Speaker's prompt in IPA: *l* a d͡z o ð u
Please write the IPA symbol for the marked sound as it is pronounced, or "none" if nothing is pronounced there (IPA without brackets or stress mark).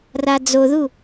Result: r